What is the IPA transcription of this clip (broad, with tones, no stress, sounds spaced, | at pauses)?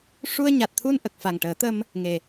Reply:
ʂ u˧ ə̯ ɲ a˨˩ t̚ t̪ʰ u˧ n ʔ ə˨˩ k̚ f a˨˩ ŋ ʈ əː˨˩˦ t̪ ə˧ m | ŋ e˨˩